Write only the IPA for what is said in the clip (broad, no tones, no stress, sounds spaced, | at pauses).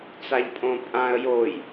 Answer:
t͡s a ʎ pʼ õ pʼ ã ə̯ j o j